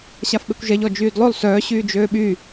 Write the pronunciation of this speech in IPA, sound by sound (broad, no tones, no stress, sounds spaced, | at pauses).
ɕ a f ɓ e kʷ ʒ ɛ ʎ ɔ d͡ʒ yː d lˠ ø lˠ s œː ɕ yː d͡ʒ øː ɓ y